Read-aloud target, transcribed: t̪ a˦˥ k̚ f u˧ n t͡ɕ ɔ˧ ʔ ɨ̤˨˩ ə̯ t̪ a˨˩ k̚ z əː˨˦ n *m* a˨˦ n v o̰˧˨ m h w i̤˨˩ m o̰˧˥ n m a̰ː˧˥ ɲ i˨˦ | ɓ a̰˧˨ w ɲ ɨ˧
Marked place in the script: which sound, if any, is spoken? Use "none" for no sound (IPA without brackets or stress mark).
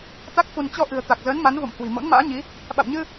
m